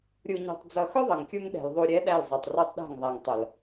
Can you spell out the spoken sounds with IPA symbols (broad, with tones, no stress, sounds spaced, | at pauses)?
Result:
ɾʲ u˨ ɲ ɔ̤˨ tˤ d͡z ʌ˨ x ʊ˦ ðˤ ʌ˨ ŋ kʲ u˦ ŋ ɗ ɛ̤˨ l ðˤ u˨ ɾʲ ɛ˨˦ ɗ æ˦˨ l zˤ ɑ˨ tˤ r ɑ˦ tˤ ɗ æ̤˦˨ ŋ ðˤ æ˨ ŋ tˤ ʌ˨ l